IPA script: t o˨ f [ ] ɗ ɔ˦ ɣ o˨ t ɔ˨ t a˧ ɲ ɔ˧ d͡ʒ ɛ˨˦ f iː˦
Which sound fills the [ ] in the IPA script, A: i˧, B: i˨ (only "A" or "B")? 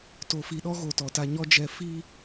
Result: B